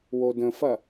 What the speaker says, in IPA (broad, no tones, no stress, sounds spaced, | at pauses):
w o d ə̃ f ɐ